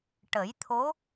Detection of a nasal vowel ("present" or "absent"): absent